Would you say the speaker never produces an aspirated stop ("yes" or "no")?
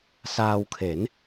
no